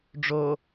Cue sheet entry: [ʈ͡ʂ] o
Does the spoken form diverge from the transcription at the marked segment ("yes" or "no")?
yes